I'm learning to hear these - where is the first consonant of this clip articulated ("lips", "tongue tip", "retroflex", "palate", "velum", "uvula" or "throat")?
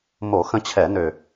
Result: lips